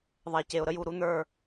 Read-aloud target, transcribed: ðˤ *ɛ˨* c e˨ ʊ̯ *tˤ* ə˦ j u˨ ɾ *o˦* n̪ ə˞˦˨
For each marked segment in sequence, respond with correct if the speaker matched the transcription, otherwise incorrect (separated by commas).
correct, incorrect, incorrect